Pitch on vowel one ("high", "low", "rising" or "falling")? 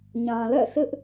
low